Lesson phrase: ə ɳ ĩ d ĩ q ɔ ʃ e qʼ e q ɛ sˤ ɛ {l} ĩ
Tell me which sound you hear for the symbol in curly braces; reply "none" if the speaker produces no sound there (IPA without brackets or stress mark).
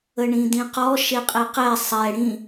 ɽ